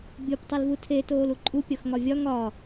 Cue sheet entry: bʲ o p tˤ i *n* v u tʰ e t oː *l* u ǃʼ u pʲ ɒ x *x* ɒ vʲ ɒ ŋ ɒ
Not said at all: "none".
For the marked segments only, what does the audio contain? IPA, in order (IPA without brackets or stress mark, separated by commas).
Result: l, l, ŋ